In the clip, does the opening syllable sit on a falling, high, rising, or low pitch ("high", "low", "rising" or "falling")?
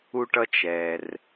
high